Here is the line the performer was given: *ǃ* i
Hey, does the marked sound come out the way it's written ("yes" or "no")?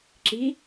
no